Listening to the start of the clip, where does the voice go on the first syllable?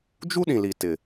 high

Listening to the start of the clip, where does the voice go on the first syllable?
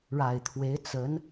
low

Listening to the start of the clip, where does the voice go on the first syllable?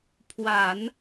low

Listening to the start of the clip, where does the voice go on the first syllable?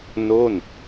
falling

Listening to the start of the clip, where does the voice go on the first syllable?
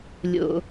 low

